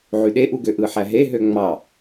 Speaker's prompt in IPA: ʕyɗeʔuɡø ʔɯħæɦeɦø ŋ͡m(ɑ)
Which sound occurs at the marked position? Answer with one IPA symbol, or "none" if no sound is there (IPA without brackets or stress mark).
ɑ